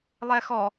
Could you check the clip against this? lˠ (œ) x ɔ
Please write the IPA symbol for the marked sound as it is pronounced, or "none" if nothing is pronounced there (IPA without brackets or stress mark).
ɛ